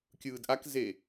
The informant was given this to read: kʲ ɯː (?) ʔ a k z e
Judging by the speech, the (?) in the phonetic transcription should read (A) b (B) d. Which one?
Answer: B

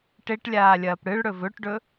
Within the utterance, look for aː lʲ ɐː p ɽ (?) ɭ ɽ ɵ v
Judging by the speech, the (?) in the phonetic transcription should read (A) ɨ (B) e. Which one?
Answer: A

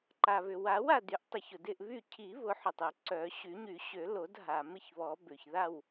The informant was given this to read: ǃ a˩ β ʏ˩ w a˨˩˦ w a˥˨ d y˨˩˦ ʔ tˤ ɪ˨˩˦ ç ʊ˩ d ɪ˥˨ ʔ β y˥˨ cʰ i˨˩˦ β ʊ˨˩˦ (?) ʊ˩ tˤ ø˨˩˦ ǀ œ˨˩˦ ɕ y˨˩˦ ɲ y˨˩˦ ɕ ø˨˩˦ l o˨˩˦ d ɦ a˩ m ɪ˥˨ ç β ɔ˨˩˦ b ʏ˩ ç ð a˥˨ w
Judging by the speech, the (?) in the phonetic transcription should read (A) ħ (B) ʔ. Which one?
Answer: A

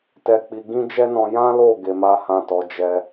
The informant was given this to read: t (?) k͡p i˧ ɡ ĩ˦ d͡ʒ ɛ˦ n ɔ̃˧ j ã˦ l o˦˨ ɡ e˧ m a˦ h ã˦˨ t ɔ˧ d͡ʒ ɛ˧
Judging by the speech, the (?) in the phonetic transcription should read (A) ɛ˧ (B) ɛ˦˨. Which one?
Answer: A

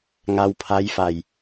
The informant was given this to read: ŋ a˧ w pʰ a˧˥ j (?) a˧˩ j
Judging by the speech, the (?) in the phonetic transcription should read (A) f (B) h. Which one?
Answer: A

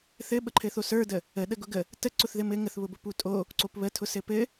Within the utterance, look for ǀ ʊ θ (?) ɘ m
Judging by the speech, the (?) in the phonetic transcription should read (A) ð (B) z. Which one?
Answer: A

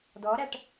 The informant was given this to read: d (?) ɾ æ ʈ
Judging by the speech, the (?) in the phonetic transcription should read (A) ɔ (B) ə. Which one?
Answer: A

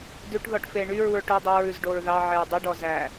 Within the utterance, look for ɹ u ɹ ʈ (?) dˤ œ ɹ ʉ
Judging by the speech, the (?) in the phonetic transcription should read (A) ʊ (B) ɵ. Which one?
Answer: B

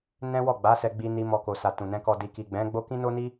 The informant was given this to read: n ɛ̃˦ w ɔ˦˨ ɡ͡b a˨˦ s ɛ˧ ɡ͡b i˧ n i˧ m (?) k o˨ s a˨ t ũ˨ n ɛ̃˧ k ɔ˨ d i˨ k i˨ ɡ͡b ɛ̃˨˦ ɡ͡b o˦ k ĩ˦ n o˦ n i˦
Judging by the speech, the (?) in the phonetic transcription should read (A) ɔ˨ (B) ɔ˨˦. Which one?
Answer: A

